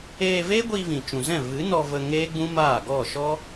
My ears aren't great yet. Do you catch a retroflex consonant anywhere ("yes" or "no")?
no